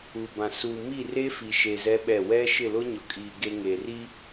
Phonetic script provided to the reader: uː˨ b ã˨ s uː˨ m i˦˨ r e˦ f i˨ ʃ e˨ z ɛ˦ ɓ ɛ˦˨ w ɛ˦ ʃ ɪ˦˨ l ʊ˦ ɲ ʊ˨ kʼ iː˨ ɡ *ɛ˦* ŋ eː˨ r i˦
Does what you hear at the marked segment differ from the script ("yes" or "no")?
yes